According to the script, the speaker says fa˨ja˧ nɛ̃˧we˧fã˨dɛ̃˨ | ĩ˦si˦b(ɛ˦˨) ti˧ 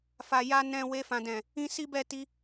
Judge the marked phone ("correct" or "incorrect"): correct